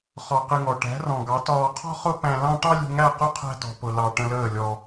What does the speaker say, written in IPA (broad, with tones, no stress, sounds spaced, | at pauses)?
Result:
χ ɒ˧ q ɪ˧ ŋ ɔ˨ ʈ æ̤˨˦ r ɔ̃˨ ɡ ɑ˨˦ t ɒː˧ qʰ ɔ̤˦ χ ʊ˦ p æ̃˧ l ɑ̃˦ ʈ ɑ˦ lʲ ṳ˧ ŋ æ˦˨ q ʊ˦ qʰ æ̤˦ t ɔ̤˧ p ʊ˧ l ɑ˧ ʈ ə̃˧ l əː˦˨ lʲ ɔ˧